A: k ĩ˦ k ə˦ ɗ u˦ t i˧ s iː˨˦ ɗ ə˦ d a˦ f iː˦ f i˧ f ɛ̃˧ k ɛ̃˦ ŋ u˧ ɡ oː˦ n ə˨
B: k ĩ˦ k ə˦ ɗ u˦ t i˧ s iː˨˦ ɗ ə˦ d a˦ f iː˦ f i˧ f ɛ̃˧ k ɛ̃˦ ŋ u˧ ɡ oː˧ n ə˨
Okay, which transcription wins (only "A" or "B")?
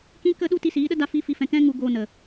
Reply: B